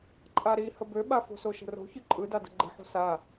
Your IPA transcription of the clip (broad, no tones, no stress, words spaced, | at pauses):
ǃʼaɾi həbøɓa fo̤soʃə̤ro̤ çɯǃʼɯda də̤ɡ͡ǃə̤ħo̤ sa